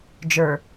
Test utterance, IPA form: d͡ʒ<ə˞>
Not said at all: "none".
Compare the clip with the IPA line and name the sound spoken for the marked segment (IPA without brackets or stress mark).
ə˞